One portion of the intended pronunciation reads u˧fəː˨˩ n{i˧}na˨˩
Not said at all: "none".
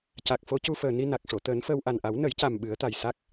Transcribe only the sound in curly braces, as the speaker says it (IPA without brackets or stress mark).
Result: i˧